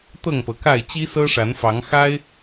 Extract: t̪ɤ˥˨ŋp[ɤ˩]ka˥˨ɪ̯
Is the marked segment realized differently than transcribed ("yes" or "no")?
no